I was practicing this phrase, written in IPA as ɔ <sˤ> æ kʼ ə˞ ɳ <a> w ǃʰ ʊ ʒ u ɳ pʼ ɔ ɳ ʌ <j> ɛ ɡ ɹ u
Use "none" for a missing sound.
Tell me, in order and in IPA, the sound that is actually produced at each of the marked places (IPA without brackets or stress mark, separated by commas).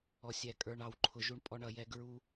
sʲ, ɑ, j